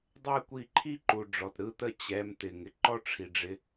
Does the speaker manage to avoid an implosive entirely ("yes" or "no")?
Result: yes